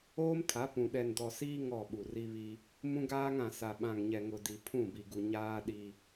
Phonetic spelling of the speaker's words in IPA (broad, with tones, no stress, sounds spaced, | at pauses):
oː˦ m tʰ a˨˦ p ũ˨ ɗ ɛ˨ n d ɔ˨ s iː˦ ŋ ɔ˦˨ ɓ u˨ r i˦ β i˦ | m ũ˦ ɡ aː˦ ŋ ã˨ s a˨ ɓ ã˨ ŋ ɲ ɛ˨ ŋ ʊ˨ d i˨ pʰ ũ˦˨ b i˨ ɡ u˨ ɲ aː˦ ɗ i˦